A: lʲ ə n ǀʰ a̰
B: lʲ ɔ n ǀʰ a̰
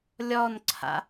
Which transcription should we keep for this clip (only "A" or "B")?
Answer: B